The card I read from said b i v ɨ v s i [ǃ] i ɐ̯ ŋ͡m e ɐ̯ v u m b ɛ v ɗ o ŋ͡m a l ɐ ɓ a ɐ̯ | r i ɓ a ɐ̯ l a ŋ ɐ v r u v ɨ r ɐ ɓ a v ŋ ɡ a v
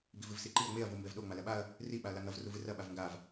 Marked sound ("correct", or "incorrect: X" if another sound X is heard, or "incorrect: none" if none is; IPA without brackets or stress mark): correct